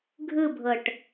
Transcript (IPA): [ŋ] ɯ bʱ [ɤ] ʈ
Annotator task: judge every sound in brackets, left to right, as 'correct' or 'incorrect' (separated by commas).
incorrect, correct